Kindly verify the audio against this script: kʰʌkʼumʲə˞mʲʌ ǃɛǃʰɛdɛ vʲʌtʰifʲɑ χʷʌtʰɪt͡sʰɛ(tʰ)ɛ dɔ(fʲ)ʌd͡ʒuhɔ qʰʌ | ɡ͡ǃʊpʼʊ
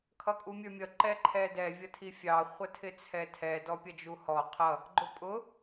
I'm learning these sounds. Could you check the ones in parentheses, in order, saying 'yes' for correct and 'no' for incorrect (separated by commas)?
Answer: yes, no